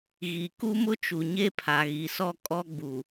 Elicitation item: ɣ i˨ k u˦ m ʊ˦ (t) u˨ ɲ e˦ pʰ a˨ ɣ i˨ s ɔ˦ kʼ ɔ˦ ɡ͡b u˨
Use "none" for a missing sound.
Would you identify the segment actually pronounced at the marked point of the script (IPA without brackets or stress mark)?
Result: t͡ʃ